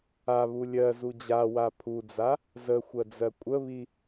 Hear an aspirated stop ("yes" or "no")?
yes